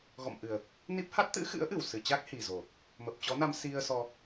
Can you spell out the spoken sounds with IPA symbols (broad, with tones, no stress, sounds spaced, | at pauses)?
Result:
ɣ ɔ̰˧˨ m ʔ ɨ˨˩ ə̯ | n i˦˥ p̚ h a˦˥ t̚ t̪ ɨ̰˧˥ x ɨ̰˧˥ ə̯ ʔ ɨ˧˩ w s ɨ˨˩ t͡ɕ a˦˥ k̚ h i˨˩ z o˨˩ | m ə˨˩ p̚ t͡ɕ ɔ˨˦ n a˧ m s i˧ ə̯ s ɔ˧